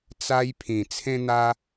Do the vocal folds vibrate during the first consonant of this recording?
no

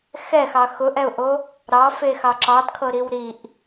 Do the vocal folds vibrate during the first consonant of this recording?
no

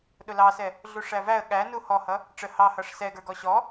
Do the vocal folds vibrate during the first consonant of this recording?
yes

